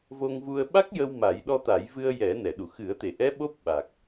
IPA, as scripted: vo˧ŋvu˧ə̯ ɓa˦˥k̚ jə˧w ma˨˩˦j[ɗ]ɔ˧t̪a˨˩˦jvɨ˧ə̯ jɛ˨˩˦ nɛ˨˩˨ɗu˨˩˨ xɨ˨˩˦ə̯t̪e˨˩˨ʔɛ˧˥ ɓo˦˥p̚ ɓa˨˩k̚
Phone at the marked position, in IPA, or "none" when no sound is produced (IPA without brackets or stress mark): ɗ